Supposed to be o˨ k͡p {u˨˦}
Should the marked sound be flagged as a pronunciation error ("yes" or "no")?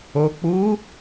no